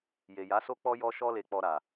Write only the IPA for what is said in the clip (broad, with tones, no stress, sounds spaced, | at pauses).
j e˨ j a˨˦ s o˦ k͡p ɔ˦ j ɔ˦ ʃ ɔ˦ l e˧ k͡p ɔ˧ ɾ a˨